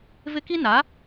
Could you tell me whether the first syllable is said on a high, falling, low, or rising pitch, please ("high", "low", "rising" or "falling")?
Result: high